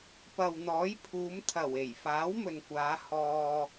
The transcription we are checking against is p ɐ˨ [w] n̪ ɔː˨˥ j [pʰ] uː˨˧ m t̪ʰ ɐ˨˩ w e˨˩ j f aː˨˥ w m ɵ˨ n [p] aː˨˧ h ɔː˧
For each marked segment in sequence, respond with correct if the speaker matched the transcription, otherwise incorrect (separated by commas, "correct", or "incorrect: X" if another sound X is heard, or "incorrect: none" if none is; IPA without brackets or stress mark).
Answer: correct, correct, incorrect: kʷ